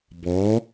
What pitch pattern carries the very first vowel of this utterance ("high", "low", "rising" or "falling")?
rising